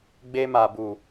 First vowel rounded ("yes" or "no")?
no